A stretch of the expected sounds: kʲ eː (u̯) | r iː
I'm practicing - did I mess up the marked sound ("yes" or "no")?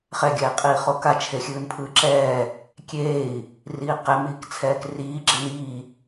yes